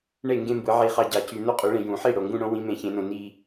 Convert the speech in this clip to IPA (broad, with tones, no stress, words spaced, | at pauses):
ɳe˥˩ŋɡẽ˥˧mbɯ˨˩˦ ʕi˨˩˦χɑ˨ ɟɑ˨cy˨ no˥˧qʼu˨˩˦ɭẽ˨ jũ˨˩˦ħi˥˩ ɽo˨ŋɡũ˥˧ɽõ˨˥ wĩ˨˥mẽ˨˩˦çẽ˨˩˦nõ˨ ni˥˧